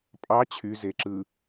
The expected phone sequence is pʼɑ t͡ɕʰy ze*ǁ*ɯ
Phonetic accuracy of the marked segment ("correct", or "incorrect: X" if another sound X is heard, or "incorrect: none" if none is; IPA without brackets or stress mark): correct